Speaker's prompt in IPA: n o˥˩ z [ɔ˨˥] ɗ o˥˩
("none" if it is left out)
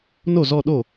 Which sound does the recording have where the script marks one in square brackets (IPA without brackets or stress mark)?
ɔ˥˧